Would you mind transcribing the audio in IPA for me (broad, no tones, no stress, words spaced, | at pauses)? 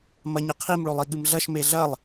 mɐɲɐqʰim ɭolˠiɠɨmɮɐʃ meɮɐlˠ